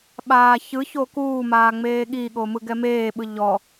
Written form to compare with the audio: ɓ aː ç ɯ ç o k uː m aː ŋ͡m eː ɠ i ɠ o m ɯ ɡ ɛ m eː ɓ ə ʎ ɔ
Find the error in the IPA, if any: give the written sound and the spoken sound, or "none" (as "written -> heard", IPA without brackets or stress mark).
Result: ə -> ɯ